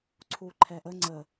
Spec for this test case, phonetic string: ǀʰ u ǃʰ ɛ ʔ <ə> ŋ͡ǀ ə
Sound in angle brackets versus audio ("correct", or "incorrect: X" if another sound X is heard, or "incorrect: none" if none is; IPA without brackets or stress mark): correct